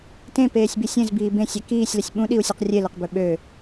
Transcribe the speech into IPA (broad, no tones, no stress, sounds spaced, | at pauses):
t ẽ p eː sʲ b i sʲ ẽ z b iː b ẽ sʲ ɛ k iː sʲ l ə sʲ ɓ ũ ɗ i u̯ sʲ ɛ q rʲ e l e q b ø ɓ ø